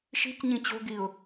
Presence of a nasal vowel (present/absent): present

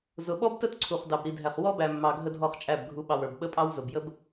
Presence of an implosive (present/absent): present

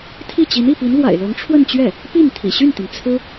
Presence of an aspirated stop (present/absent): present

